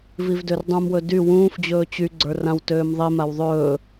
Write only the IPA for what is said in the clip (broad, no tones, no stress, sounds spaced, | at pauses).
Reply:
v i v d ø r dˤ ũ m w ɵ d y w ũː f d͡ʑ ɵː t͡ɕ y ɡ͡ǀ ə˞ r ã w t øː m ðˤ i m a w ðˤ ɵː